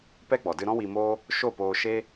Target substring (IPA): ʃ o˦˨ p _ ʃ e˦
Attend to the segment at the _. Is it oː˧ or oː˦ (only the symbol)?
oː˧